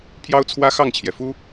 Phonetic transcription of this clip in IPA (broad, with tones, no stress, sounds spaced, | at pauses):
pʰ j ɑ˦ ʊ̯ t͡sʰ w ä˦ x ɑ˥˨ ŋ t͡ɕʰ j ɛ˩ f u˦